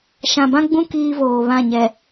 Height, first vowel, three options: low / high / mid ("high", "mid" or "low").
low